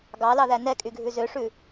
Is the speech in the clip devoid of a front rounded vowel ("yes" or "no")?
no